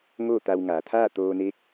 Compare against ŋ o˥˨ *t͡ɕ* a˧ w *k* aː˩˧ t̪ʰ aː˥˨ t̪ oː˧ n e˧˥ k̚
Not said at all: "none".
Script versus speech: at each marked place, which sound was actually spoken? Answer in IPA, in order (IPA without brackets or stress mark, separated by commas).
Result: t̪, ŋ